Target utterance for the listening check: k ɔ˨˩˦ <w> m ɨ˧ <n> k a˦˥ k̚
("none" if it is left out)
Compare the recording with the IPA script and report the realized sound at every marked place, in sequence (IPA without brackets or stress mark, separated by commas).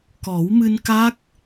w, n